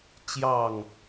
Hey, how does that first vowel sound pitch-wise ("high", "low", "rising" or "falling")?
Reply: falling